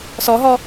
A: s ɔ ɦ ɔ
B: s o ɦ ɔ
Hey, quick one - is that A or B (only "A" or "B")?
A